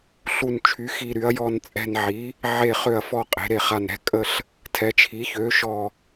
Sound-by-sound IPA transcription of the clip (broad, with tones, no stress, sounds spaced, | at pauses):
ɬ u˨˩ n t͡ʃʰ y˩˧ x i˨˩ ɾ y˩˧ ɐ̯ j ɔ˨˩ n t͡sʼ ɛ̤˨˩ n ʕ i˩˧ | ʕ e˨˩ χ ø˨˩ ɐ̯ f ɔ˨˩ qʼ e̤˩˧ ɾ e˨˩ χ a˨˩ n ɾ ɛ̤˩˧ kʼ ə˨˩ ɬ | tʰ ɛ˩˧ t͡ʃʰ i˩˧ ç ø˩˧ ʃ ɔ˨˩